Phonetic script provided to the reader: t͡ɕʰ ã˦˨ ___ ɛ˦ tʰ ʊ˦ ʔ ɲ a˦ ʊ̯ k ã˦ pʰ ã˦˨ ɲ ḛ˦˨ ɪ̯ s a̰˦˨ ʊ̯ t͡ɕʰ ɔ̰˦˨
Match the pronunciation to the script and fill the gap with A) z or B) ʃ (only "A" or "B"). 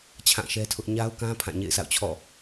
B